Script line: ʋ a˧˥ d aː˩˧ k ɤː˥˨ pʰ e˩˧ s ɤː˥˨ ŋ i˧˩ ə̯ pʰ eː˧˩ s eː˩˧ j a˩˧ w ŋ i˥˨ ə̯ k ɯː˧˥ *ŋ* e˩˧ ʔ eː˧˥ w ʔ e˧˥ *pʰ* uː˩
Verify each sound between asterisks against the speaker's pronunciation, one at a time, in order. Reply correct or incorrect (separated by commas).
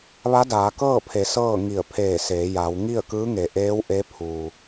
correct, correct